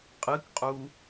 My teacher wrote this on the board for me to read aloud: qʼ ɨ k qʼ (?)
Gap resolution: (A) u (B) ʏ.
A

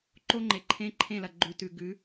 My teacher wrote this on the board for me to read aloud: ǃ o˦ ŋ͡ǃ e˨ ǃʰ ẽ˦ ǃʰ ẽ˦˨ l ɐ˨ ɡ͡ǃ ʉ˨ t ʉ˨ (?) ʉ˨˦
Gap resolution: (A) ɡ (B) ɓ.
A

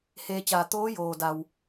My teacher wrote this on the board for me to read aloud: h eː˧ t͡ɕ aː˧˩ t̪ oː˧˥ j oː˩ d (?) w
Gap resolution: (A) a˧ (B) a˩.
B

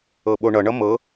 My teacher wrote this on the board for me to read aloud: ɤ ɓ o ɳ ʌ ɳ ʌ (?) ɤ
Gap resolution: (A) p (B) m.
B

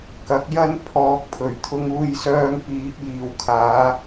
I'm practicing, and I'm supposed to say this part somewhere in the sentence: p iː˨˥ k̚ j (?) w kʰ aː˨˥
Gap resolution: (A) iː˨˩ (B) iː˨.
B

